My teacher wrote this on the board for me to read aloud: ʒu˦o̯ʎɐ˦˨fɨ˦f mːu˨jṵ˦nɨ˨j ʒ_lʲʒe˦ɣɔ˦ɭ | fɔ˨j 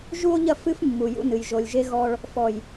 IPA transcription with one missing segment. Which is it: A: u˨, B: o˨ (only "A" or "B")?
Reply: B